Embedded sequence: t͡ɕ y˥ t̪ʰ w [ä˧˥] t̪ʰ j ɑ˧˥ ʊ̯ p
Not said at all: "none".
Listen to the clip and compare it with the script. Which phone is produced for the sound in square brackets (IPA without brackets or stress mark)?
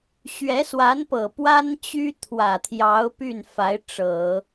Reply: ä˨˩